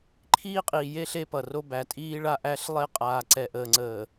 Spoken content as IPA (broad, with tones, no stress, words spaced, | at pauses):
ǃʰiː˦qʼiː˨je˦ ɬe˦pʌ˨ro˦ bæ˨tʼiː˦ɭa˦ ʔæ˦ɬ lˠe˦ qʼaː˨ǀɛ˨ʔəː˨ ŋ͡ǀəː˨